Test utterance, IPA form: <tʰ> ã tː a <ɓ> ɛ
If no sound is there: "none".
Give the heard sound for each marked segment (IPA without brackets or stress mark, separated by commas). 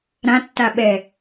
ɾ, ɓ